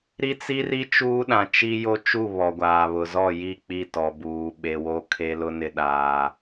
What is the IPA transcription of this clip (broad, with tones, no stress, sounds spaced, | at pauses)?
ɾ i˦ t͡s i˦ r i˦ t͡ʃ uː˦ ɗ ã˨ t͡ʃ i˦ j o˦ t͡ʃ u˦˨ β ɔ˨ ɡʷ aː˨ β ʊ˨ z ɔ˦˨ j i˦˨ k͡p i˦˨ t ɔ˨ b uː˨ ɓ e˨ w o˦ kʰ e˦ l ʊ˦ n ɪ˦ ɗ aː˦